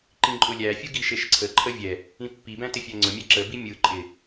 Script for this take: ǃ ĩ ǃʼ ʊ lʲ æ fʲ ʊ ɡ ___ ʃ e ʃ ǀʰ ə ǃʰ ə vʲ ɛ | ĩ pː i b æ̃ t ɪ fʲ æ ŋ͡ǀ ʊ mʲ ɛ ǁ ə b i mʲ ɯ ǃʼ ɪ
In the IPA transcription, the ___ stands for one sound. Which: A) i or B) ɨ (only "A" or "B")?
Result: A